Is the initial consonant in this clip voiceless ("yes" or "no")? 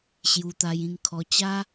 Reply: yes